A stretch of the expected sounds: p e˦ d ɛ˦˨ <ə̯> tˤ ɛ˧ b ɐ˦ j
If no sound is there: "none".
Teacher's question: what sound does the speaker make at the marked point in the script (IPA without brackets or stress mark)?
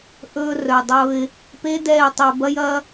ɪ̯